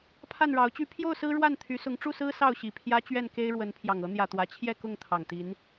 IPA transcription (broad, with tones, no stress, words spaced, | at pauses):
pʰa˥˨nɻɑ˨˦ʊ̯t͡ɕy˦ pʰjo˥˨ʊ̯sɹ̩˦ ɻwa˥˨nt̪ʰy˨˦sʊ˨˦ŋ ʈ͡ʂu˥˨sɹ̩˦ sɑ˥˨ʊ̯ɕi˨˩pʰjä˦ t͡ɕɥɛ˥˨nke˦ɪ̯ ɻwə˨˦npʰjɑ˨˩ŋ ɤ˨˦n̪jä˨˩t̪wä˨˦ t͡ɕʰjɛ˥˨ kʊ˥˨ŋt̪ʰɑ˨˩ŋt̪i˨˦n